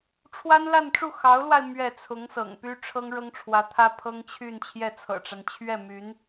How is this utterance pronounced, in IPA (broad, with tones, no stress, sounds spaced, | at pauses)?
ʈ͡ʂʰ w a˥ n l a˥˧ n ʈ͡ʂ u˥˩ x ɑ˧˥ ʊ̯ l w a˧ ɪ̯ m ɥ ɛ˥˩ t͡sʰ ʊ˧˥ ŋ s ɤ̰˨˩ ŋ p y˥ ʈ͡ʂʰ ɤ˥ ŋ ɻ ɤ˥ ŋ ʈ͡ʂʰ w ä˧˥ t̪ʰ ä˥ pʰ ɤ˥ ŋ t͡ɕʰ y˥˧ n t͡ɕʰ j ɛ˥˩ t͡sʰ ɤ̰˨˩ ʈ͡ʂ a˦ n t͡ɕʰ ɥ ɛ˥˩ m y˧˥ n